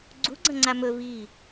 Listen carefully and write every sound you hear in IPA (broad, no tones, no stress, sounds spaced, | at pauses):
ɡ͡ǀ u ɡ͡ǀ ɐ̃ ŋ͡ǀ a m ɵ v i